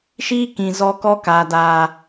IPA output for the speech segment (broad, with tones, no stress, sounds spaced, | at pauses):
ʃ iː˦ k ĩ˨ z ɔ˦ k ɔ˦ k a˨ d aː˨